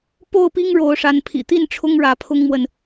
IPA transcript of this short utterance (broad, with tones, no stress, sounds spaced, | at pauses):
p o˥˨ ʊ̯ p i˦ ŋ ɻ o˨˦ ʊ̯ ʂ a˨˦ n pʰ ḭ˨˩ t̪ i˥˨ n ʈ͡ʂʰ ʊ˦ ŋ ɻ ä˨˦ pʰ ʊ˦ ŋ m w ə˨ n